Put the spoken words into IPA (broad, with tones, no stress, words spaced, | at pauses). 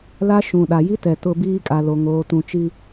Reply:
la˦ʃũ˨ ɗa˨ji˦tɛ˨ tʊ˨ biː˦kʼa˨lo˨ ŋoː˨ tũ˨t͡ʃi˦